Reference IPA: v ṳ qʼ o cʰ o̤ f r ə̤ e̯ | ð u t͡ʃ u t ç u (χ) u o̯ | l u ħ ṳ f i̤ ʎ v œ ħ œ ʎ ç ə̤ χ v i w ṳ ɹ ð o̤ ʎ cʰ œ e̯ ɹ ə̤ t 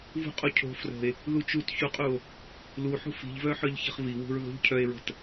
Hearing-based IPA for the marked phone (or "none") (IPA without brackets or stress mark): qʼ